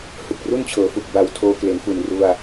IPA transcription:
h ɯ˨˩ k̚ r u˥˩ n t͡ɕʰ ɤː˩˦ f u˨˩ k̚ b a˨˩ w tʰ oː˧ k l e˩˦ n f u˨˩ n r u˧ a̯

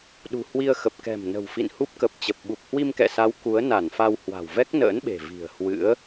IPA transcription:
ɗ ṳ˨˩ h w i˧ ə̯ x ə˨˩ p̚ k ɛ̤˨˩ m n ə̤˨˩ w f ḭ˧˨ n h u˦˥ p̚ k ə˨˩ p̚ t͡ɕ ə˨˩ p̚ ɓ u˨˩ p̚ h w i˧ m k ɛ̰˧˨ s a˨˦ w k u˨˦ ə̯ n a˧˩ n f a˧ w h w a̤˨˩ w v ɛ˦˥ k̚ n ə̰ː˧˥ n ɓ e̤˨˩ v i̤˨˩ ə̯ h w ɨ̰˧˥ ə̯

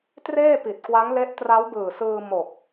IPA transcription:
t r eː˥˩ p i˨˩ t̚ k w a˦˥ ŋ l e˦˥ ʔ t r a˦˥ w b ɯː˨˩ s ɯː˧ m o˨˩ k̚

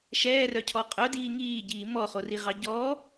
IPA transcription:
ʃ ɛː r œ cʰ ɔ qʼ œ d iː ŋ iː ɟ iː m ɔ χ o r i ʁ ɑ ɟ ɔː

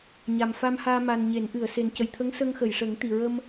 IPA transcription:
ɲ a˨˩ m f a˧ m h aː˧ m a˨˩ n ɲ e˨˩˦ n ʔ ɨ˨˩˨ ə̯ s e˨˩ n c ə˨˩ j t̪ʰ ə˧˥ ŋ s ə˧ ŋ x ə˨˩˨ j ʂ ə˨˩˦ ŋ t̪ i˨˩ ɹ ə˧ m

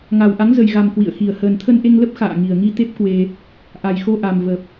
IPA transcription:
ŋ a˨˩ w ʔ a˨˦ ŋ z ə˨˩ j ɣ a˨˩ m k w ḭ˧˨ ə̯ x i˨˩ ə̯ h əː˨˩ n t̪ʰ ə˧ n ʔ e˧ ŋ l ə˦˥ p̚ x a̰ː˧˨ ŋ i˨˩ ə̯ ŋ i˧ t̪ e˦˥ p̚ k w e˧ | ʔ a˨˩ j x o˧ ʔ a˨˩ m v ə˨˩ p̚

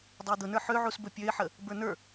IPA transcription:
dˤ ə ɪ̯ d̪ ʊ n ə˞ ħ ø ʕ u s b ɵ pʲ ø ɪ̯ ħ ə | b ə˞ n ə˞

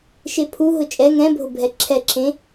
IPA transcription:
ʃ e pʰ u ɦ ʊ t͡ʃʼ ɛ ŋ ɛ̃ bʱ ʊ bʱ ɛ ǁʰ ɛ ǁʰ ẽ

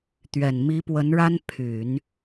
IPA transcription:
t̪ ɥ ɛ˨˩ n m i˧˥ p w ə˧˥ n ɻ a˥ n pʰ y˨˩˦ n

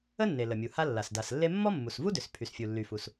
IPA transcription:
ə˥ nː e˩ l ə˩ mʲ u˩ h a˥ lː a˩ s d a˩ s lː e˥ mː ɔ˥ mː u˩ s v u˥ d ʏ˩ s pʰ y˩ s fʲ u˩ lː y˩ f u˩ s

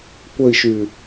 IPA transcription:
kʷ ə i̯ ʃ y

